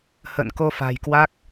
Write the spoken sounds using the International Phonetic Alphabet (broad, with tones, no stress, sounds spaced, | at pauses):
h ə̰ː˧˨ n k o˧ f a̤˨˩ j k w a˦˥ k̚